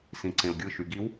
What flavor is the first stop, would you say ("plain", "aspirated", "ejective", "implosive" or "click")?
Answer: click